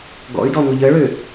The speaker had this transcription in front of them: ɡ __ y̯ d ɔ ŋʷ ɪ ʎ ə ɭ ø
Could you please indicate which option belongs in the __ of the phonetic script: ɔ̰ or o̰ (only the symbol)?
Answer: ɔ̰